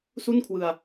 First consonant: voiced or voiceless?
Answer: voiceless